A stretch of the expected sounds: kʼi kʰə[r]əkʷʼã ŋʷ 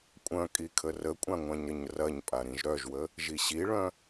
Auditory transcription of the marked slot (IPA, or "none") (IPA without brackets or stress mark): r